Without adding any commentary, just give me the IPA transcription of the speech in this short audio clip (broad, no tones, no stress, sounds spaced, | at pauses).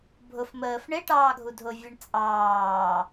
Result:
bʱ ʊ f m əː f ɳ ɪ ʈ ɑː ɡʱ u dʱ ʊ vʲ ə ɳ t͡sʼ ɑː